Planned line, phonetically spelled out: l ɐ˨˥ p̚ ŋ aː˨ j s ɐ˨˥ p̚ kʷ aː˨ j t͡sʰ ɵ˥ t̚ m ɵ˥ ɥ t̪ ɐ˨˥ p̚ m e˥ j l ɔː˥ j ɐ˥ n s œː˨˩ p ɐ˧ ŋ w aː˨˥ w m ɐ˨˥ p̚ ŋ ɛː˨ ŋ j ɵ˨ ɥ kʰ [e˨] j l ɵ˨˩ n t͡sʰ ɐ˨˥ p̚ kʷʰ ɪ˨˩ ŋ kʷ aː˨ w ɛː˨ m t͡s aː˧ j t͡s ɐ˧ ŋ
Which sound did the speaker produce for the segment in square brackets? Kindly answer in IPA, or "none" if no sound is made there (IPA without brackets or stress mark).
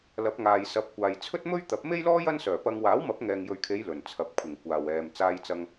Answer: e˨˧